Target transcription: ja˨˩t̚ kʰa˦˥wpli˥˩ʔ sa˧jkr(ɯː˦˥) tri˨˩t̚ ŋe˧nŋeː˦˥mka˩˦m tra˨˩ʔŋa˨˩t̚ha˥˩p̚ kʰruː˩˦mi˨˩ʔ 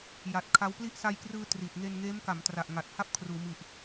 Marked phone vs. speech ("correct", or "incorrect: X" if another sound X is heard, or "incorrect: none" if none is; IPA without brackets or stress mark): incorrect: ɯː˧